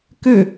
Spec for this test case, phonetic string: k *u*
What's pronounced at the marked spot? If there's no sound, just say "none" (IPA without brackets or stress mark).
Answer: ø